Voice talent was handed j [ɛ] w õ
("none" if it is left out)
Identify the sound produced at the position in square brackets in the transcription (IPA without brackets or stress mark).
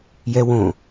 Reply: ɛ